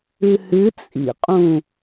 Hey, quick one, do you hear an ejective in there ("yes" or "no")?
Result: yes